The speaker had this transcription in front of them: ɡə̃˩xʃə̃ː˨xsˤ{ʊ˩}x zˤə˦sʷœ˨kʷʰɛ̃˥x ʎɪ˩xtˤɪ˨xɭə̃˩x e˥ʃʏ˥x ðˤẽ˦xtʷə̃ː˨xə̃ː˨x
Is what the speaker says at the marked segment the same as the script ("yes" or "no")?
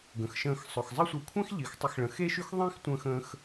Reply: yes